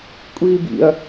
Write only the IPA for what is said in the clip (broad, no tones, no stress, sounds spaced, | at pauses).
kʷʼ iː b ḭ ɐ̯